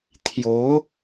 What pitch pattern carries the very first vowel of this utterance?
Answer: rising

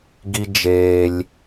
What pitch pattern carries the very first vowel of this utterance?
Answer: high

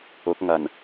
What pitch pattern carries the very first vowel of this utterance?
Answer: rising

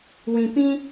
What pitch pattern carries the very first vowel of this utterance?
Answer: low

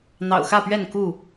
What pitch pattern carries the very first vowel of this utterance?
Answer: low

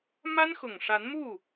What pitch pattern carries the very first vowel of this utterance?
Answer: high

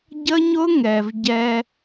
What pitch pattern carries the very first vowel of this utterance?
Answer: high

